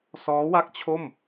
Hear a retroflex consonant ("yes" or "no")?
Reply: no